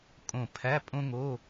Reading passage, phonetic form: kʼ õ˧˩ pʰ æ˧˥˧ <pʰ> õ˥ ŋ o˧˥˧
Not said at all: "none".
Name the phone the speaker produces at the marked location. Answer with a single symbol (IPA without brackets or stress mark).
pʼ